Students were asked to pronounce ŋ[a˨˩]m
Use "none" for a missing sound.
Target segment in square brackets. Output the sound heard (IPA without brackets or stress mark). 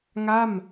a˥˩